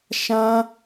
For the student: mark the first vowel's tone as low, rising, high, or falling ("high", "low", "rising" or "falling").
high